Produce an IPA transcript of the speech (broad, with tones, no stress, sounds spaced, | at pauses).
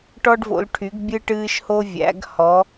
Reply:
ʈ ɔ˧ ɖ v o̰˩˧ l ʈʰ y˩˧ ɡ bʲ ɨ˧ ʈ ɨː˧ ʃ h o˧ vʲ æ̰˩˧ ɡ h ɔ˩˧